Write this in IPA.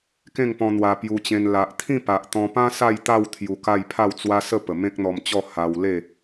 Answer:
kẽ˥˧ŋpɔ̃˧ n̪wa˧pju˧t͡ɕẽ˧n la˨ʔt̪ʰĩ˥˧ pa˨ʔt̪ɔ̃˧pã˦ sa˥˧jt̪a˥˧w t̪ʰju˧ka˥˧j pʰa˥˧wt͡swa˦ sə˥˧ pə˨˩mẽ˦k̚n̪ɔ˧mt͡ɕɔ˥˧ ha˧wle˥˧

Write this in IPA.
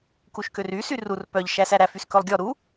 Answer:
kuʃkøry syrur pœʎ ʃæsæɾæf yskɵlˠɡʲɔ ɾu

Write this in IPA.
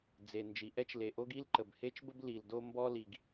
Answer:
d͡ze˩ nd͡ʒi˩ʔɛ˥t͡ʃle˩ʔo˥ɡ i˥lǃə˩bhe˥t͡ʃbə˥b li˩ldo˥ mbɔ˥ li˩ɡ

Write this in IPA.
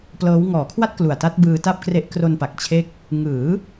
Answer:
plɤː˦˥w ŋɔː˩˦kʰwa˥˩t̚ klu˨˩a̯ta˦˥t̚ bɯː˧ta˥˩p̚kre˦˥ʔ kro˧npa˨˩k̚t͡ɕʰe˦˥k̚ | ŋɯː˩˦

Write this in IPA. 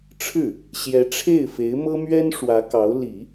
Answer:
ʈ͡ʂʰɻ̩˥˩ | ɕjɛ˧˥ ʈ͡ʂʰe˥˩ɪ̯fe˧˥ɪ̯mɤ˥ mɥɛ˥nʂwä˧˥ kɑ˧˥ʊ̯li˨˩˦

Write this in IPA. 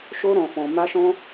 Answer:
ʃo˦ɾɔ̃˧fɔ̃˧ ma˦ʃɔ̃˦

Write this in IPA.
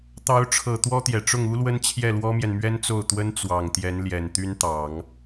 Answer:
t̪ɑ˧˥ʊ̯ʈ͡ʂʰɤ˨˩ t̪wɔ˥t̪jɛ˨˩ ʈ͡ʂʊ˥˩ŋu˥lwə˥n t͡ɕʰjɛ˥˩lwɔ˥mjɛ˨n mɥɛ˥nt͡so˥˩ʊ̯t̪wə˥n t͡swɑ˨˩ŋt̪jɛ˧˥n ljɛ˨˩nt̪y˥nt̪ɑ˨˩˦ŋ

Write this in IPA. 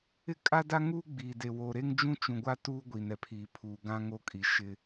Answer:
ɪ˦kʼa˦da˦ ŋuː˦ɡ͡biː˨de˨ wo˨ ɾe˦ŋd͡ʒũ˦t͡ʃũ˨ɡʷa˦ tuː˦ɡʷiː˨nɛ˨pʰiː˨ pʰuː˨ɡã˦ŋo˦kʼi˨ ʃɪ˦

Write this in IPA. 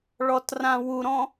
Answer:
ɭɔtrãwuɾɔ̃

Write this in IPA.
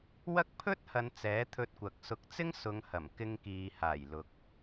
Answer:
wɐ˥k̚ pʰɵ˥t̚hɐ˨˧n t͡sɛː˨˥t̪ʰɵ˧t̚kʷɐ˨k̚sʊ˧k̚ t͡sɪ˥ŋsʊ˨˧ŋhɐ˨˩m kɪ˧ŋkiː˨ haː˨˩jlʊ˨k̚

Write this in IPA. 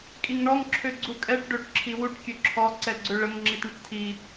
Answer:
kʼiŋɳɔŋ ǁʰøɡ͡ǀukʼɛʈ ɖøʈ ǁʰiwuʈ kʲøǁʰɔ ǀɛɡ͡ǀøɭəŋ ŋ͡ǁitɳəʈtʰi

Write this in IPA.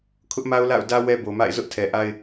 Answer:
kʰʊ˦ʔma˦ʊ̯ la̰˦˨ʊ̯ dä˦ wɛ˦bo˨ma̰˦˨ɪ̯ zʊ˦ʔtʰɛ˨ʔa˦ɪ̯

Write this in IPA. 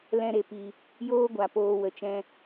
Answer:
lɛ̃˧ɾe˨pi˨ | joː˦ɡʷa˨poː˧ wə˨t͡ʃɛ̃˧

